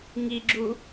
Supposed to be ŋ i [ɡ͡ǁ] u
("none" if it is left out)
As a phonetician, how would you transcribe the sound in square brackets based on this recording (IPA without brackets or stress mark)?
ɡ͡ǁ